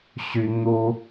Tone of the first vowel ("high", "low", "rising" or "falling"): high